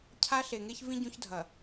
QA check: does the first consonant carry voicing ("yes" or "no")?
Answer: no